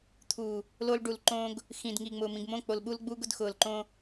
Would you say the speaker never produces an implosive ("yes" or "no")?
no